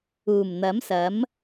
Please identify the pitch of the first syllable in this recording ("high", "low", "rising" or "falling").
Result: low